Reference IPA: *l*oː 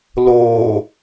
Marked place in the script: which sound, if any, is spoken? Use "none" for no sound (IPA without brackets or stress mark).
l